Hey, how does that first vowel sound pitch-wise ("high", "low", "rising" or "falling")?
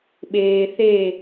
low